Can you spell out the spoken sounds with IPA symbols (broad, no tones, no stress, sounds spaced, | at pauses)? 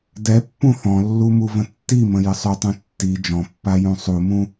d ɛ pː ũ θ ɔ̃ lː u m u v ə̃ tː i m ə̃ j ə sˤ ʏ tˤ ũ tː i d͡ʒ ɔ̃ pː a j ũ sˤ u m ũ